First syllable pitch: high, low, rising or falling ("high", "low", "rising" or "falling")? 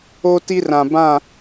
high